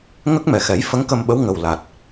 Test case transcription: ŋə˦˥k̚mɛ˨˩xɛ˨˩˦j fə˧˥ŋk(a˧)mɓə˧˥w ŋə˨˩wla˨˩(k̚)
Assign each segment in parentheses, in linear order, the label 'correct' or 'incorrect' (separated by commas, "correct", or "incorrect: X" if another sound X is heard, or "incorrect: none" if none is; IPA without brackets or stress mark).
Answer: incorrect: ə˧, incorrect: t̚